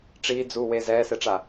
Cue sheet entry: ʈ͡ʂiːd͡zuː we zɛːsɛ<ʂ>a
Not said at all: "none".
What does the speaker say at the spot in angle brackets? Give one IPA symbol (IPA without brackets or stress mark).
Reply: ʈ͡ʂ